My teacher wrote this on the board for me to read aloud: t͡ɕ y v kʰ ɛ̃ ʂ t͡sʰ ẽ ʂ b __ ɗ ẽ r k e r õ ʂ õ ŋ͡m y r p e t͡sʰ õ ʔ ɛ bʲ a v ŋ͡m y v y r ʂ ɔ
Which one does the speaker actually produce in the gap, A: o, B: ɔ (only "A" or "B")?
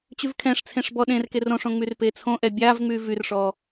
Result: B